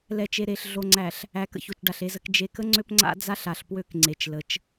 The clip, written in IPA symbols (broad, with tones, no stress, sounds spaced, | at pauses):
l ɛ˨ t͡ʃ e˨ ɾ e˨ ɬ ɮ o˨ ŋ͡ǀ æ˨ ɬ | æ˨˦ k ə̰˨ ç o˨ t͡ʃ ɖ a˨ ɬ e˨ z ə˨ k d͡ʒ e˨ k ə˦ ŋ͡ǀ ø˦ p ŋ͡ǀ a̰˦ d͡z a˦ ɬ a˨ ɬ p w ø˦ k ŋ͡ǀ e˨ t͡ʃ l ə˨˦ t͡ʃ